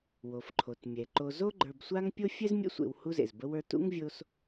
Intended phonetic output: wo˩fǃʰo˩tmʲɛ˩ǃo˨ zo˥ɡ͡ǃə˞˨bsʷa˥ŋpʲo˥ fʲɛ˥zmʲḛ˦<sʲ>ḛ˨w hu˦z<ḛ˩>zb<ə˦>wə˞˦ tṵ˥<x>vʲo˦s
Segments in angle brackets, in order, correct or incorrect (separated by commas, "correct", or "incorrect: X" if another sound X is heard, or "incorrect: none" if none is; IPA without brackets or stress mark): incorrect: sʷ, correct, correct, incorrect: ŋ